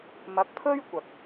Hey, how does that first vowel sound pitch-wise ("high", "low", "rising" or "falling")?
rising